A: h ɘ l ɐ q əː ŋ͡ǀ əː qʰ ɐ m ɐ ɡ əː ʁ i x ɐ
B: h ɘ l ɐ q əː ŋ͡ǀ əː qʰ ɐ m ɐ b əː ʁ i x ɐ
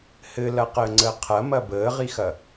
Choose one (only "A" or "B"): B